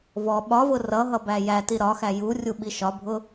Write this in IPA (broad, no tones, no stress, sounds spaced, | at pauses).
v ɔ ɓ ɒ v ʊ r ʌ ɦ ʌ b æ j æ t i ɾ ɒ x æ j u rʲ u ɓ i ʃ ɒ bʱ ʊ